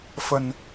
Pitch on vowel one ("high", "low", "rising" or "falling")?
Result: low